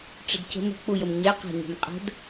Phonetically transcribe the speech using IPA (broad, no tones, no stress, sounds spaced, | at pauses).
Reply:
ʈ͡ʂ ɘ d c ə̤ m ə̤ k͡p u j ə m ɲ ɛ q a̤ ɲ ɛ̤ m qʼ ə̤ d